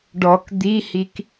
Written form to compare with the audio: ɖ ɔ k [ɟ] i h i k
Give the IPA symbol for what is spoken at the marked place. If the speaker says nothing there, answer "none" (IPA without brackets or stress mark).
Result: d̪